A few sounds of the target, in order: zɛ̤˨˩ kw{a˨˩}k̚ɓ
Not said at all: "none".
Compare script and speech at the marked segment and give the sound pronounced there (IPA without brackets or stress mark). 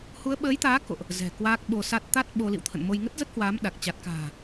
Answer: a˦˥